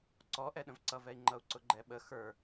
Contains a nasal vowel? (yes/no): yes